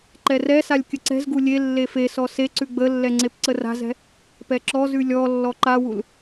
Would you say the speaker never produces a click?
no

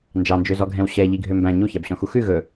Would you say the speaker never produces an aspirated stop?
yes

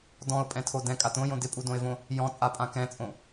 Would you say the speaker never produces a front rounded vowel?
yes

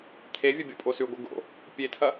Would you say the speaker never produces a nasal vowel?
yes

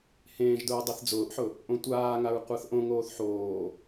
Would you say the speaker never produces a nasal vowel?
no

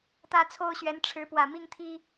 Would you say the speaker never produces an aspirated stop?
no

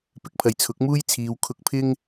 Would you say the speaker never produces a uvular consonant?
yes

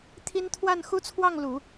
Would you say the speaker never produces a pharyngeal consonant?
yes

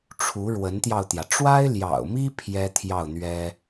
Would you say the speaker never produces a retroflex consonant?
no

